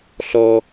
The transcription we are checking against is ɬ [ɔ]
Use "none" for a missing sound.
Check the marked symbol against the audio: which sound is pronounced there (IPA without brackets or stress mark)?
ɔ